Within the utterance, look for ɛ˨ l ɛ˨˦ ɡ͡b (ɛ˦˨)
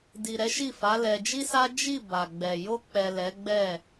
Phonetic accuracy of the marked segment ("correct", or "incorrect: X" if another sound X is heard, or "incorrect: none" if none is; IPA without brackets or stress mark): correct